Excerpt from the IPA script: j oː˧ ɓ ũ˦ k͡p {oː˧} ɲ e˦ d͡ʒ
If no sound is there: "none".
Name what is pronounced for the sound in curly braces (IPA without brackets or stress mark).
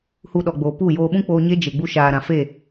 oː˧